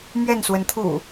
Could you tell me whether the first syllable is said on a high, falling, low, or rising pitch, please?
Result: falling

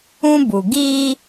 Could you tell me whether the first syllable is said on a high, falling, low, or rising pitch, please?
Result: high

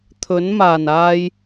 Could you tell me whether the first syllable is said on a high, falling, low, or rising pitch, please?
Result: rising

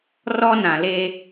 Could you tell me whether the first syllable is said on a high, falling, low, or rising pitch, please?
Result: high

